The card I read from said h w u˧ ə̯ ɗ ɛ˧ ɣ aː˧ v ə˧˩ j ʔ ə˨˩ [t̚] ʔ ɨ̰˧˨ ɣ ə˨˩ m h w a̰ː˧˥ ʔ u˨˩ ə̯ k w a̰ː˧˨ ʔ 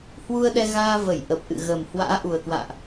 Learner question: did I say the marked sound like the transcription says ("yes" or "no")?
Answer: no